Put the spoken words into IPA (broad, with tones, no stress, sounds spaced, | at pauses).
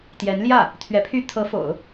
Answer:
t̪ j ɛ˧˥ n l j ä˥˩ | t̪ʰ ɥ ɛ˧˥ pʰ y˥˩ t̪ʰ ɤ˧˥ f o̰˨˩˦ ʊ̯